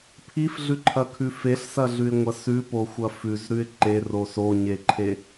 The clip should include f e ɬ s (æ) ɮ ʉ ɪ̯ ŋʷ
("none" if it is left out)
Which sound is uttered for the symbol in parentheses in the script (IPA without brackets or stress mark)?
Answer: ɐ